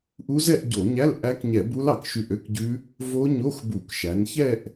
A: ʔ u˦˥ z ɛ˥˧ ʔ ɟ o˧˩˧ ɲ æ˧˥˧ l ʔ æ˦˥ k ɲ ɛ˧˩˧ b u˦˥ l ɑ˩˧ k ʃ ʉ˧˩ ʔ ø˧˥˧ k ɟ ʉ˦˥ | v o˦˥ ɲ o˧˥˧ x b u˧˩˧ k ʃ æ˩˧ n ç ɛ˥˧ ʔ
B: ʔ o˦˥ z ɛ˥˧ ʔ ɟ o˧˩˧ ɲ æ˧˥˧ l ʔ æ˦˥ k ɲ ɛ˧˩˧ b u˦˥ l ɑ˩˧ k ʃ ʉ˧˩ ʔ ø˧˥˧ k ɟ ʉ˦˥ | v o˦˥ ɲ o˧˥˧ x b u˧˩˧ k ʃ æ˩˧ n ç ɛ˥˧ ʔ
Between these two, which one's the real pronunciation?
A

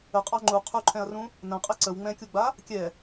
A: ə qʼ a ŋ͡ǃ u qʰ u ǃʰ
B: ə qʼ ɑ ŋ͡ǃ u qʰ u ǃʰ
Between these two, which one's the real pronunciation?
B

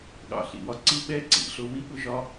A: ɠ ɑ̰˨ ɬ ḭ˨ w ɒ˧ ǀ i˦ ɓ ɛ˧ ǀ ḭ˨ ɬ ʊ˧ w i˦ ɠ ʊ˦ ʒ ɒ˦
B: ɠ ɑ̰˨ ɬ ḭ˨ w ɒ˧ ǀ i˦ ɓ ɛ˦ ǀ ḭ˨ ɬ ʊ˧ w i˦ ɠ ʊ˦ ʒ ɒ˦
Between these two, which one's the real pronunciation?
B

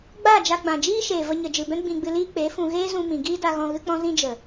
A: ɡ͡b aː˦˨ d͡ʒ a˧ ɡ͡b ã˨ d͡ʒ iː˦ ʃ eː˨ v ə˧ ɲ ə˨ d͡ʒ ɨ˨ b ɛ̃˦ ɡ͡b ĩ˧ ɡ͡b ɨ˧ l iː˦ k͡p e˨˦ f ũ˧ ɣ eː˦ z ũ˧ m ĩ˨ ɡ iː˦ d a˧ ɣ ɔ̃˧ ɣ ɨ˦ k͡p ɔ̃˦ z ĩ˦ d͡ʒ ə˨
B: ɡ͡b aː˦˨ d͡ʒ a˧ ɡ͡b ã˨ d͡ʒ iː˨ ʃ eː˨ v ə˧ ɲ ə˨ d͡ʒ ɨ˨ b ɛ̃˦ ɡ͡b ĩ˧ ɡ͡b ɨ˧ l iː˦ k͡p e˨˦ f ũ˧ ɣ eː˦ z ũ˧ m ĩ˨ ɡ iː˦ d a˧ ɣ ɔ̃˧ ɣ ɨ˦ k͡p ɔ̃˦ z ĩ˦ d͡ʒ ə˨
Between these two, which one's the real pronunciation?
A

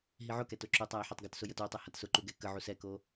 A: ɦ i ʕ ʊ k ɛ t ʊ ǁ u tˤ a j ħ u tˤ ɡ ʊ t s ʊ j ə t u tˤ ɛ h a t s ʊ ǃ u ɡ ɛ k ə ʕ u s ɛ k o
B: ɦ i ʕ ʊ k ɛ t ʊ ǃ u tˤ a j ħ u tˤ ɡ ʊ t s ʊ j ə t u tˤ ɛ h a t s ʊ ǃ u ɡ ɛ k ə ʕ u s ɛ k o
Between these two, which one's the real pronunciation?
A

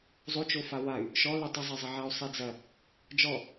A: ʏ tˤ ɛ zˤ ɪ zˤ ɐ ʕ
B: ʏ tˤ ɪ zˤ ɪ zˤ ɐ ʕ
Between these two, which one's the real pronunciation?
B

